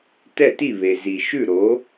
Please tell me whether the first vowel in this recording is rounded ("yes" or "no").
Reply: no